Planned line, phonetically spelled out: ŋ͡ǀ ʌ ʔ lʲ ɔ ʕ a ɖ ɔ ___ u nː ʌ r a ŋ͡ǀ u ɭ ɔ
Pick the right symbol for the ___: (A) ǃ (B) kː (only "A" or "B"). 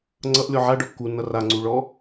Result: B